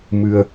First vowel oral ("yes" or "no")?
yes